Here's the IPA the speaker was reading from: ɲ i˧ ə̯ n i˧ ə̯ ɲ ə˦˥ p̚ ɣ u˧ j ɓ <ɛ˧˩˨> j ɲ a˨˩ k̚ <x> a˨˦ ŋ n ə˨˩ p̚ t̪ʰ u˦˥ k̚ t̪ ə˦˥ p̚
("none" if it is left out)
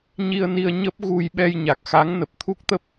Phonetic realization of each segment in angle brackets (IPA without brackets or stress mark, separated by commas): ɛ˧, x